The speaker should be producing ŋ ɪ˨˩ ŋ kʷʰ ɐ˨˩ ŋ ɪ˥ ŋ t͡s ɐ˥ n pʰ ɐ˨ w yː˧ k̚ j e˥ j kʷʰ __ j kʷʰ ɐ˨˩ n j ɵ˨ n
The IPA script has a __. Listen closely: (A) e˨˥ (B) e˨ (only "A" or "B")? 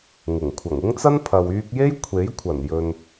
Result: A